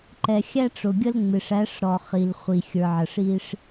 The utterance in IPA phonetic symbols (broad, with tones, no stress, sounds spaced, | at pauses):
ǃ ɛ˨ xʲ æ˦ ʈ͡ʂ ʊ˨ ɡʲ ə˦ l ŋ͡m ɪ˨ ʂ æ˨˦ ʂ ɾ ɔ˨ χ i˨ l χʷ i˨ xʲ ə˞˨ ʕ ə˨ ʂ i˦ ʂ